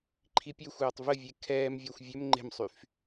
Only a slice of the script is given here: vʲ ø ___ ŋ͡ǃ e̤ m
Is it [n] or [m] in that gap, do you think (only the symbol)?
m